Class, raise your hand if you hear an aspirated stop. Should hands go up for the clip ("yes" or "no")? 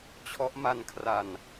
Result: yes